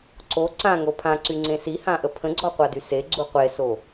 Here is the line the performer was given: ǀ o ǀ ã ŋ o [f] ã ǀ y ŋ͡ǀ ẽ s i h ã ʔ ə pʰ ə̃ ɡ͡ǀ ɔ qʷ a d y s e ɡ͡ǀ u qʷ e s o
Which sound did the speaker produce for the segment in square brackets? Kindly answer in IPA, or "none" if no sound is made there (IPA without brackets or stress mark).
pʰ